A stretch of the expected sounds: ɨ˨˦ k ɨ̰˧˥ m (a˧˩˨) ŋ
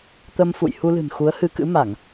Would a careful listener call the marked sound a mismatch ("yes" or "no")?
no